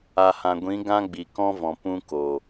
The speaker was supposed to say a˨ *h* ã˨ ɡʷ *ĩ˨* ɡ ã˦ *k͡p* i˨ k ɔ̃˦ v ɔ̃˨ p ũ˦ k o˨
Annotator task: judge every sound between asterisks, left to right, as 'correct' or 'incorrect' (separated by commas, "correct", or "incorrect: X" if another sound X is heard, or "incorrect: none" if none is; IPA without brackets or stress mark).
correct, incorrect: ĩ˨˦, incorrect: ɡ͡b